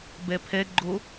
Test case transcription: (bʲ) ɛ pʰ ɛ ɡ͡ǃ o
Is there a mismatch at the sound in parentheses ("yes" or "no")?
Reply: yes